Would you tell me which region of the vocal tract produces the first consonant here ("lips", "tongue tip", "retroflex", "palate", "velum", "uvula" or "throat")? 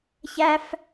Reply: palate